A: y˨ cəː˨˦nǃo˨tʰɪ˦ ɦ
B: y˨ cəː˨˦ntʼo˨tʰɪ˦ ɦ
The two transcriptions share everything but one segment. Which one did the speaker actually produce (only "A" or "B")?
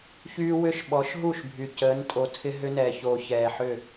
B